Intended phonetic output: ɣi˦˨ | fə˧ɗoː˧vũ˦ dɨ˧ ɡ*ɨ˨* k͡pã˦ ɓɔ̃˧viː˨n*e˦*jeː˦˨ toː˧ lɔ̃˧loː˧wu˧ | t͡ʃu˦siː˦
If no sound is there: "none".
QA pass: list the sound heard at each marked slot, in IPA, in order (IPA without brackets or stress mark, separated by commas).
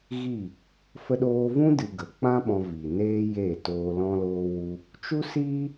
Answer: ə˨, eː˦